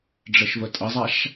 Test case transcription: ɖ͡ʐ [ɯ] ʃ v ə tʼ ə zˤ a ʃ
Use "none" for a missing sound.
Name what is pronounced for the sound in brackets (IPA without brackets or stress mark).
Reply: ə